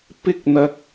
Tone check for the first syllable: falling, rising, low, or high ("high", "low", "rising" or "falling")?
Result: high